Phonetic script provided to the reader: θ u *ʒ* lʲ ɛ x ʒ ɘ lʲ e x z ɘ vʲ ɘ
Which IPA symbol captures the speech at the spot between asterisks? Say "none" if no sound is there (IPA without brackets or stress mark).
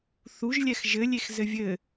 ʒ